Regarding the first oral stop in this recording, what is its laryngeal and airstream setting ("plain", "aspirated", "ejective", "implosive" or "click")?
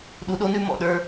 implosive